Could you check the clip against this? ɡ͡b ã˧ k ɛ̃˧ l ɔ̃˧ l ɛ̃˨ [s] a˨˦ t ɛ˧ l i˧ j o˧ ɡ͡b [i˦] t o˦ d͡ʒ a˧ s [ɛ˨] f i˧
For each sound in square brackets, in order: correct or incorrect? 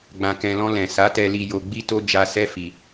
correct, correct, incorrect: ɛ˦

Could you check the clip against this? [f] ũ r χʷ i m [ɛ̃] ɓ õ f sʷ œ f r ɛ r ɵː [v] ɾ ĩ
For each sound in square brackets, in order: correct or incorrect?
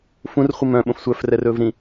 correct, incorrect: œ̃, correct

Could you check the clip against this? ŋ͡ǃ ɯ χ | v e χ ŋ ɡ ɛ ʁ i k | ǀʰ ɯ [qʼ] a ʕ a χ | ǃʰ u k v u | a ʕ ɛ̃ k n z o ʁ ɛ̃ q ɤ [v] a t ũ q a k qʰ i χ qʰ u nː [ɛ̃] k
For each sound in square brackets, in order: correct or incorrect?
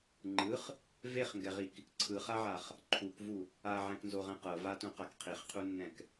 incorrect: χ, correct, correct

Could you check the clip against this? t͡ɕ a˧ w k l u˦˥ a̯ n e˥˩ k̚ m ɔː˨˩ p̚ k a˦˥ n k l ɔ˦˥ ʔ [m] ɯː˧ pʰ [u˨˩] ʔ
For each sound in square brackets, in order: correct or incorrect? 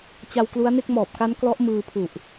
correct, correct

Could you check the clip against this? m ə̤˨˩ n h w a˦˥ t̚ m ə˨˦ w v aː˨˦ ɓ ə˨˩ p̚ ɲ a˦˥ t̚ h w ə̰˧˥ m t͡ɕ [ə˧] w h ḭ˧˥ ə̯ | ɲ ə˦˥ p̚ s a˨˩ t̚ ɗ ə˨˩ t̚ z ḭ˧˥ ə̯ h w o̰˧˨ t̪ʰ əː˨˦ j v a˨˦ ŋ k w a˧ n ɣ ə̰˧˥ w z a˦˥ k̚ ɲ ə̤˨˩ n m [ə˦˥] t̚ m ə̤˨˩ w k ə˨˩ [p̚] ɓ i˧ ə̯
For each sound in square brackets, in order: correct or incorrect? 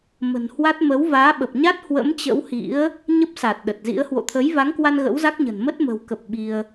incorrect: ə̰˧˥, correct, correct

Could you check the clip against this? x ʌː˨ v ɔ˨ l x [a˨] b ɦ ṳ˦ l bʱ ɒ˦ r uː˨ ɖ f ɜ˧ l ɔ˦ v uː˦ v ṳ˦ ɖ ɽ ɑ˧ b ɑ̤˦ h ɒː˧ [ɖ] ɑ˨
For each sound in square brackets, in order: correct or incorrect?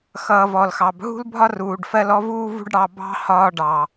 incorrect: ɑ˨, correct

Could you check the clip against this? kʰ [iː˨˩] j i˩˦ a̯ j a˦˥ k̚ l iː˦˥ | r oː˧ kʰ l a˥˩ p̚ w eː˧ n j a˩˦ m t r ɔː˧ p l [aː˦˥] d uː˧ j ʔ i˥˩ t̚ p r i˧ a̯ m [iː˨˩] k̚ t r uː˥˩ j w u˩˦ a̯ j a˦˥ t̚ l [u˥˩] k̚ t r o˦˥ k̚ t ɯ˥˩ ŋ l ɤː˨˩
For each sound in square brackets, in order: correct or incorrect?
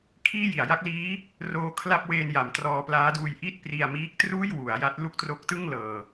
incorrect: iː˥˩, correct, incorrect: iː˦˥, correct

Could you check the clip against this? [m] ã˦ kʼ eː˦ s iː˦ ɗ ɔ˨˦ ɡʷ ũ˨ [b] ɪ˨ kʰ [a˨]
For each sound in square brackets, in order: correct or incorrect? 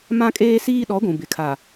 correct, correct, correct

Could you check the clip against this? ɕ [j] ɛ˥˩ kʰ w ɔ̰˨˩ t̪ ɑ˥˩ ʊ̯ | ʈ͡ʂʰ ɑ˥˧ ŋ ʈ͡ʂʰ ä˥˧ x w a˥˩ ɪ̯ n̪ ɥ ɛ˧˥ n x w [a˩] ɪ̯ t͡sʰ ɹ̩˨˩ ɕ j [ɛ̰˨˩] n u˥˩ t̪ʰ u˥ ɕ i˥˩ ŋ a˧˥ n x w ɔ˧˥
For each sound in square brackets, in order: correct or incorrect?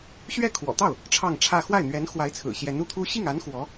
incorrect: ɥ, incorrect: a˧˥, incorrect: ɛ˧˥

